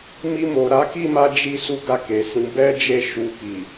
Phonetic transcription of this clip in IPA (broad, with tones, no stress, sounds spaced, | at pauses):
m i˧ m o˨ ɾ a˨˦ k i˦˨ m a˧ d͡ʒ i˧ s u˦ ɡ a˦˨ k e˨ s ĩ˨˦ b ɛ˦ d͡ʒ e˦˨ ʃ u˧ k i˨